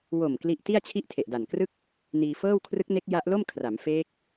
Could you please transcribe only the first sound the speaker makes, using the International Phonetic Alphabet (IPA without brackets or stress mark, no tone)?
w